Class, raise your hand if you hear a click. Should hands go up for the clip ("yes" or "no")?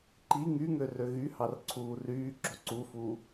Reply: yes